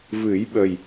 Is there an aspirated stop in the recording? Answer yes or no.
no